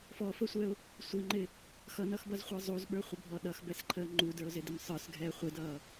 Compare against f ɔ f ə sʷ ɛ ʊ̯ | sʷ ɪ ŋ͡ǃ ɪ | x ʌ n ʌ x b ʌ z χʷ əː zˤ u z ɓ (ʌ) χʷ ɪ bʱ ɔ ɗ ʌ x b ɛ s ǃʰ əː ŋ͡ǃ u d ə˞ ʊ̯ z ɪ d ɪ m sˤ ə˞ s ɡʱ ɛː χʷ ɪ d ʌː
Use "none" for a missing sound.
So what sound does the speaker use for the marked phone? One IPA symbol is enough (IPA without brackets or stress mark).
ə˞